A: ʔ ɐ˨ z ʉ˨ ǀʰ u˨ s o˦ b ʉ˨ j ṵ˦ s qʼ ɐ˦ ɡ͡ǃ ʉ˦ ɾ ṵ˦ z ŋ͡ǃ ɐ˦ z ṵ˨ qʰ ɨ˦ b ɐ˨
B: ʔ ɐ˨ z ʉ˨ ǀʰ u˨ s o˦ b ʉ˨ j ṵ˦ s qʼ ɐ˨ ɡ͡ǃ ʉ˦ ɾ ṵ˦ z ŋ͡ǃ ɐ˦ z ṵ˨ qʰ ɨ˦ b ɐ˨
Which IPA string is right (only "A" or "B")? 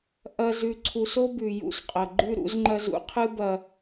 B